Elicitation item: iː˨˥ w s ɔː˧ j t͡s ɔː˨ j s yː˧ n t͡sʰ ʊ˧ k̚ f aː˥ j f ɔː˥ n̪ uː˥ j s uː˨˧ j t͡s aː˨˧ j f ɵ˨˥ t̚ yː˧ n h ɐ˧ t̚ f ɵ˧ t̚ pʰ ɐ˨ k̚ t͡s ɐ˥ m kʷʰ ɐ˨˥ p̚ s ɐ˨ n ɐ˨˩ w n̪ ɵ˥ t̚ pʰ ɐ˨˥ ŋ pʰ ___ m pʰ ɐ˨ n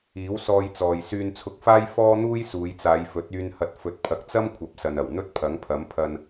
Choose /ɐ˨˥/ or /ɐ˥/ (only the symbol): ɐ˨˥